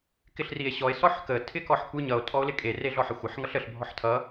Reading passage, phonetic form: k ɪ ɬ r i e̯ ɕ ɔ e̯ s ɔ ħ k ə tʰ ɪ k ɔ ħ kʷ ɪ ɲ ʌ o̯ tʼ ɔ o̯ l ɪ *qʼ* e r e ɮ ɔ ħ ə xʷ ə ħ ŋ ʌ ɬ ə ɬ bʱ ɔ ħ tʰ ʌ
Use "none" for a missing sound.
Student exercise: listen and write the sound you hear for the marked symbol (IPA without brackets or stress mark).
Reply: kʼ